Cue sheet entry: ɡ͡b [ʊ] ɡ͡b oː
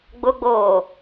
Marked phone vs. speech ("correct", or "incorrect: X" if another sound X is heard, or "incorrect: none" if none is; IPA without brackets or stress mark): correct